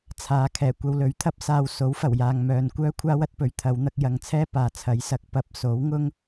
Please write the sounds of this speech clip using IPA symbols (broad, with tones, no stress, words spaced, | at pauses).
t͡sʰaː˨˧kʰɛː˨˩ kʷɐ˧wlɵ˨˥ɥt̪ʰɐ˥p̚saː˧w so˨˥wfɐ˨˩wjaː˨ŋ mœː˨nkʷœː˥ kʷʰaː˥wɐ˨˥t̚pɵ˨˧ɥ t̪ʰɐ˨˧wn̪ɐ˧k̚jɐ˨ŋt͡sʰɛː˥ paː˨t͡sʰɐ˨˥jsɐ˨˥k̚ pɐ˨˥p̚so˨˥wŋʊ˥ŋ